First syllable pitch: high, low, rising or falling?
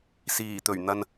low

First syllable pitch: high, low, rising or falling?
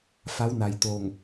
rising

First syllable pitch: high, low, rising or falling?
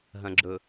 low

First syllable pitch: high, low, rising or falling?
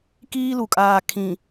high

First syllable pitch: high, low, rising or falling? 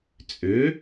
rising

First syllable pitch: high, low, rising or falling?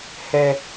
high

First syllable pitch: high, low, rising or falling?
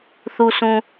low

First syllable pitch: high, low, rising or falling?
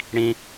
low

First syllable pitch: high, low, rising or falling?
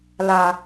low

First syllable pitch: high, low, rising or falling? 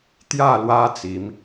falling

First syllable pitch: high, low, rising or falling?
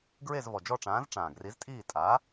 falling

